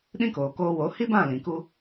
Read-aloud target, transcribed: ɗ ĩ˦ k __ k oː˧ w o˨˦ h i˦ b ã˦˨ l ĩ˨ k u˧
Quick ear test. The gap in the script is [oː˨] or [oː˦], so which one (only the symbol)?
oː˨